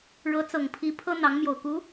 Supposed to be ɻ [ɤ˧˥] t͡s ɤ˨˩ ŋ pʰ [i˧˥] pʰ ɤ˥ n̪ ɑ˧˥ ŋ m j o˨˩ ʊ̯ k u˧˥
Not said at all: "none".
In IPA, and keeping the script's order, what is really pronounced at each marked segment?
ɤ˧˥, i˧˥

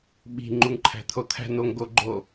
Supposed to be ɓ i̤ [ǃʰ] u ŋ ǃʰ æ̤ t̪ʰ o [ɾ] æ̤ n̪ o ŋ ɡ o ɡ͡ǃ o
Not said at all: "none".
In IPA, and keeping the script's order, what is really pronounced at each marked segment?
ŋ͡ǃ, t̪ʰ

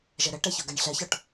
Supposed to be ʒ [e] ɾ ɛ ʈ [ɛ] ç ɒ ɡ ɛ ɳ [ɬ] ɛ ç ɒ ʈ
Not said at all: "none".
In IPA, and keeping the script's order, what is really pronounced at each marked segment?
ɛ, ɛ, ɬ

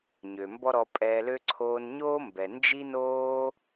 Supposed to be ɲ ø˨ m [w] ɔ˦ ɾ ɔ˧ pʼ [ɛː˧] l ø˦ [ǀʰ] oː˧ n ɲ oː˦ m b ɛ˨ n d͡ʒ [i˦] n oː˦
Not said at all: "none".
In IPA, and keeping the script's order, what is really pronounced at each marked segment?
b, ɛː˧, ǀʰ, i˦

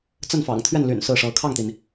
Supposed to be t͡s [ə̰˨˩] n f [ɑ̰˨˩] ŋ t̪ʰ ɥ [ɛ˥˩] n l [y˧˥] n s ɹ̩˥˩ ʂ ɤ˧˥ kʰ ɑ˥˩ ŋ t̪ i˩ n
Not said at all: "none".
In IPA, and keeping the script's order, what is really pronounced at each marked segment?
ə˥˩, ɑ̰˨˩, ɛ˥˩, y̰˨˩

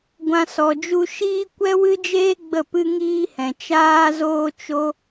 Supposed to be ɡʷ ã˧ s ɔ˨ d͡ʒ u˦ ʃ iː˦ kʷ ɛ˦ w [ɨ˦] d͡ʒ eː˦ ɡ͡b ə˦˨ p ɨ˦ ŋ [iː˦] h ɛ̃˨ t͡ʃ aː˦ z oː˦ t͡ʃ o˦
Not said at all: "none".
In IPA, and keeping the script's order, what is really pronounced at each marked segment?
ɨ˦, iː˦

